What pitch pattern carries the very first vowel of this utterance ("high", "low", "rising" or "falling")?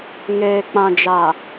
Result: low